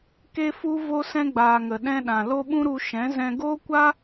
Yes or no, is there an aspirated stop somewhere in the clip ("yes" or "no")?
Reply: no